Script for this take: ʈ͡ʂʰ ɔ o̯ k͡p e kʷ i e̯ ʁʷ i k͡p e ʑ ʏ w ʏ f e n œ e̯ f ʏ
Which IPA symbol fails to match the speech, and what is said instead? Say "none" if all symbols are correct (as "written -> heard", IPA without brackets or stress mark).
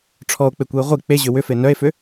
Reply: none